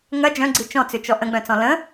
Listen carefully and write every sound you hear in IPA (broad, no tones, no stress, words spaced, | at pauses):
ŋɐ d͡ʒœ̃ɡ͡ǀi t͡ʃɔ̃t͡sʏt͡ʃɔ ʔə̃ɡ͡bœ̃t͡sɔ̃ lə̃